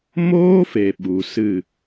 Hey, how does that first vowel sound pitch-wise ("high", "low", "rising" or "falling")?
high